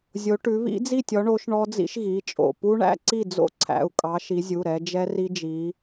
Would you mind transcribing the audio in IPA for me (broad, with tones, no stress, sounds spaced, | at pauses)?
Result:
zʲ o˨˦ ʈ ʉ˨˦ β ḭ˦˥ d͡z i˥˩ tʲ ɔ˨˦ ɳ o˨˦ ʃ ɳ ɔ˦˥ d͡z ḭ˦˥ ʃ ɣ i˩˧˩ t͡ʃʼ o̰˩˧˩ p u˦˥ ɳ æ̰˦˥ ǀ i˥˩ d͡z o̰˥˩ ǀʰ æ̰˩˧˩ u̯ kʼ ɑ˨˦ ʃ i˨˦ zʲ u˩˧˩ ɾ ɛ˨˦ d͡ʒ ɛ˦˥ r i˦˥ d͡ʒ i˨˦